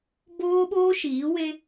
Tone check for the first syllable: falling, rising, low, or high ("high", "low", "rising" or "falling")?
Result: high